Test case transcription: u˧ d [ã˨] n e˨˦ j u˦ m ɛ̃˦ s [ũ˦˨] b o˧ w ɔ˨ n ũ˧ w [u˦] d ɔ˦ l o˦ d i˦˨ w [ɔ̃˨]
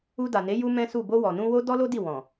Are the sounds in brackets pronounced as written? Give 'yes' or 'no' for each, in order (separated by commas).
no, no, no, yes